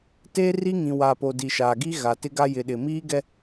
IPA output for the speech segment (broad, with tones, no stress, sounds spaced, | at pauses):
t eː˦ r i˦ ŋ ĩ˨ w aː˨ p o˨ d i˨ ʃ aː˨ ɡ i˦ ɣ a˨ t ɪ˦ ɡ a˦ j ɪ˨ ɗ ɪ˨ m iː˦ ɡ ɛ˦